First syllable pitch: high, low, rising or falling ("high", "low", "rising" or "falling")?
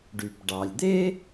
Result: low